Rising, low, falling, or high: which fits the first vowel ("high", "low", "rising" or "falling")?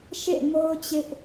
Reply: falling